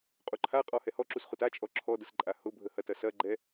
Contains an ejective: yes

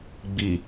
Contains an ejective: no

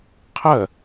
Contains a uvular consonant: yes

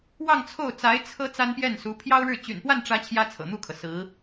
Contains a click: no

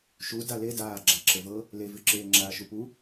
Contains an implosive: no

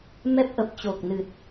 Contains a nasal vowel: no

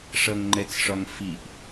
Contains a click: yes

